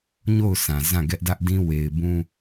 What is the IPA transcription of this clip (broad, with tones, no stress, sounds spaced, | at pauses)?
ɲ o˦˨ ʊ̯ s ã˨ z ã˦˨ ɡ ɛ˦ ʔ d ä˦ ʔ d ĩ˦ w e˨ ɪ̯ b ũ˦